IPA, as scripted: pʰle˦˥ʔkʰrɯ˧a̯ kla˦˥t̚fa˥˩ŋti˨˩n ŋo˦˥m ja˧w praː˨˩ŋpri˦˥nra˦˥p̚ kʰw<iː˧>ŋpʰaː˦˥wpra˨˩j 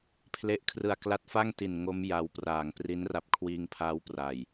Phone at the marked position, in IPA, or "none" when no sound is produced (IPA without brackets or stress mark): iː˧